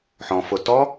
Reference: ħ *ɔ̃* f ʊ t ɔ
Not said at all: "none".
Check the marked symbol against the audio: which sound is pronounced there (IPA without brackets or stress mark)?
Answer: ɔ̃